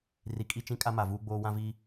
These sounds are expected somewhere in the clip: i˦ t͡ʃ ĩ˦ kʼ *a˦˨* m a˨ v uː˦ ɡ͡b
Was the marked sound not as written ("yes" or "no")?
yes